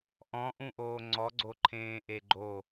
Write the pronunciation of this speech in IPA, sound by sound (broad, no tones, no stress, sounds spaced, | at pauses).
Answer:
ʔ ɔ̃ ʔ ũ ʔ oː ŋ͡ǀ ɔ ɡ͡ǀ o ǃʰ ẽː ʔ e ɡ͡ǃ o